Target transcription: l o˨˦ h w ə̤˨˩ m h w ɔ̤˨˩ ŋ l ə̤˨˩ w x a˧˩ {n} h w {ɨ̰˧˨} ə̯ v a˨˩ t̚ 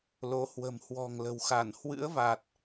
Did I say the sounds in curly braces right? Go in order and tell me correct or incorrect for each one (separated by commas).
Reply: correct, incorrect